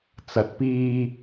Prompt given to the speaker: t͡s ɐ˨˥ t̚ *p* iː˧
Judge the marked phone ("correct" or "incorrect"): correct